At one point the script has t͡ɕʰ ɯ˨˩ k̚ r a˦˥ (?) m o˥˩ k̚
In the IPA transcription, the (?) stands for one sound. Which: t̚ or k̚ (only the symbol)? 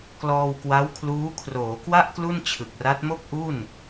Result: t̚